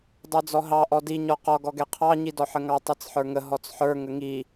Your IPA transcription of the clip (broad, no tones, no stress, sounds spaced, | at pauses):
dˤ ə˞ d͡z ɔ ɦ ɑ ʔ ɔ d i ɲ ɔ q ɔ ɡ ɔ ɡ ɛ qʰ ɑ ɲ i d ɔ ħ ə ŋ ɑ tˤ i t͡s ħ ə˞ ŋ ə ɦ ɔ t͡s ħ ə˞ ŋ ə ŋ i